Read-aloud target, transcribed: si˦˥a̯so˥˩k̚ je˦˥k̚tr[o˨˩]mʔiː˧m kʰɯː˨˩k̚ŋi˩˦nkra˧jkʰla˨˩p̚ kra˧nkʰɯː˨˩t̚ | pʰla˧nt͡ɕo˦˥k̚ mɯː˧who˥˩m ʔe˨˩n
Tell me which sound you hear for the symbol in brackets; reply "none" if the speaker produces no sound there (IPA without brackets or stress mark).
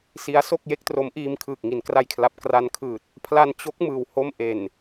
o˦˥